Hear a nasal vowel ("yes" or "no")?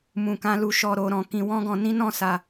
yes